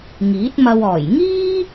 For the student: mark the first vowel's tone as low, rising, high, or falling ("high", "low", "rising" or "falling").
rising